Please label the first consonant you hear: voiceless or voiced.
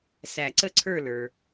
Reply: voiceless